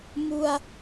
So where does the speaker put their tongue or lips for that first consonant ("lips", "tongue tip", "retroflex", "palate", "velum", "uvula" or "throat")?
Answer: lips